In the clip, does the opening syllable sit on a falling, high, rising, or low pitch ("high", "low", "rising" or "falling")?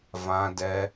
high